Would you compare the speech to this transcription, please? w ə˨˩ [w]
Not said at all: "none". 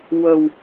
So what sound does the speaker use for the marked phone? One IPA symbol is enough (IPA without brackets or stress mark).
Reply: w